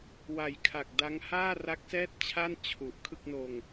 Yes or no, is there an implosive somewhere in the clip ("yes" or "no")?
no